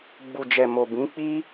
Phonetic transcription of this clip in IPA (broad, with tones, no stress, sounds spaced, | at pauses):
ɡ͡b u˨ d͡ʒ ɛ˨ m o˨ b ĩ˨˦ k͡p i˦